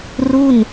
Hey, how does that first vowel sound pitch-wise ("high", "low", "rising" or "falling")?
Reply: falling